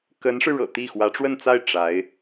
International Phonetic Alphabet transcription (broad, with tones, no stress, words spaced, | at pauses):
kə˧˥nʂɻ̩˧ ɻɤ̰˨˩t̪i˥˩ xwä˧˥ʈ͡ʂwə˥˧nt͡sa˥˩ɪ̯ ʈ͡ʂa˧˥ɪ̯